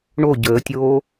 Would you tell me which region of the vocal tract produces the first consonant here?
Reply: retroflex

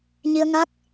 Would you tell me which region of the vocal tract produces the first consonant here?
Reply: palate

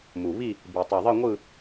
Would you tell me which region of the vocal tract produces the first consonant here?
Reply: lips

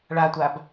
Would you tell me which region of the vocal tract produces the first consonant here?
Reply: retroflex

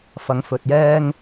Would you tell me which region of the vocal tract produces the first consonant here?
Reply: lips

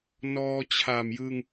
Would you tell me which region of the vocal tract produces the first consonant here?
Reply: tongue tip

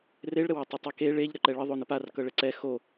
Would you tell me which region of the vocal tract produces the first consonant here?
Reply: tongue tip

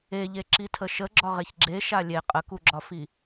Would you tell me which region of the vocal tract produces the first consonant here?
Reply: palate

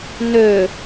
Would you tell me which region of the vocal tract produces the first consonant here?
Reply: tongue tip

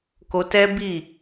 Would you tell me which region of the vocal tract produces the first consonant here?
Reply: velum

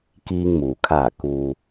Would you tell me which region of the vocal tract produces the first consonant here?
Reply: velum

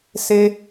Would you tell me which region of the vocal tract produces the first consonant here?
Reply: tongue tip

